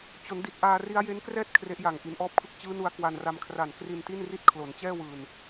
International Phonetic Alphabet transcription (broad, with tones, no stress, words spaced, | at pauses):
t͡ɕo˩˦ndi˨˩t̚ ʔaː˧ri˦˥a̯ je˦˥nkrɛː˥˩t̚ kʰre˦˥ʔja˨˩ŋ ʔi˩˦nʔɔː˦˥p̚kʰɯ˦˥k̚ t͡ɕɯː˦˥nu˧a̯ kwa˧nra˧m kʰra˨˩n kri˧nti˥˩nri˥˩t̚ kʰlo˩˦nt͡ɕɛː˥˩wɯː˨˩n